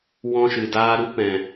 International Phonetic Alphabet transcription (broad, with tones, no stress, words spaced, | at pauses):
wɔ̃˧ʃɨ˨daː˧ɾu˦ pɛ̃˨